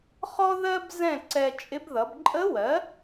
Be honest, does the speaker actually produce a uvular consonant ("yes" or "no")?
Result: yes